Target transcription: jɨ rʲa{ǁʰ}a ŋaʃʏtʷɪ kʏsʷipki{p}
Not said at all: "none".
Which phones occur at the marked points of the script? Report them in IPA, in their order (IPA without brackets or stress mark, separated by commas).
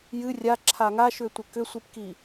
ǁʰ, none